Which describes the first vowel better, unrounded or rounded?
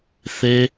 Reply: unrounded